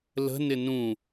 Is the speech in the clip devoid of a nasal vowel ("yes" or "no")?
no